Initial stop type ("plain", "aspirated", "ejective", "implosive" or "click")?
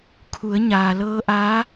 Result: aspirated